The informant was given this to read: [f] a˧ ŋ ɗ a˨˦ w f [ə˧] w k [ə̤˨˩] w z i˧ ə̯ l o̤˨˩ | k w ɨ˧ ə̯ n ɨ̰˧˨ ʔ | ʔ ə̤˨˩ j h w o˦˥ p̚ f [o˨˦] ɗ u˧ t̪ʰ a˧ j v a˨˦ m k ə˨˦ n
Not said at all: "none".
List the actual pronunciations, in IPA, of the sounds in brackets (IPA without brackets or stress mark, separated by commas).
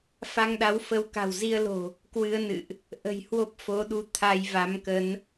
f, ə˨˦, a̤˨˩, o˨˦